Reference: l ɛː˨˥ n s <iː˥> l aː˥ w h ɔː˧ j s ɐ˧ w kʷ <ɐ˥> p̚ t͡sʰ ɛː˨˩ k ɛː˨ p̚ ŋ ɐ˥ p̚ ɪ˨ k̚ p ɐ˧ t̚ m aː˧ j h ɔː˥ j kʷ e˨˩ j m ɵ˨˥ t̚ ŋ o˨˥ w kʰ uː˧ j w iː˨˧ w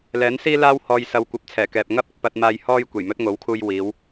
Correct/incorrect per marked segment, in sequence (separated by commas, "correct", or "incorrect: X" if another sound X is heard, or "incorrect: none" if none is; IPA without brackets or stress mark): correct, incorrect: ɐ˨˥